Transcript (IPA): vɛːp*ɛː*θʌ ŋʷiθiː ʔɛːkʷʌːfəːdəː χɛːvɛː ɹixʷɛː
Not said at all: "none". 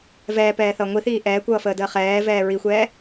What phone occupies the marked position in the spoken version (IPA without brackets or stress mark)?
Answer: ɛː